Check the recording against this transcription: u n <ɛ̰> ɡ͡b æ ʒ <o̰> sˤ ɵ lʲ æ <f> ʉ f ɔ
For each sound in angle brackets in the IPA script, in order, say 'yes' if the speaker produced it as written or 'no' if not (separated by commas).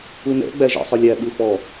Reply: yes, no, no